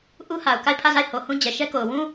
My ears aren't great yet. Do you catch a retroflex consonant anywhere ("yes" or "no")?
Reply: no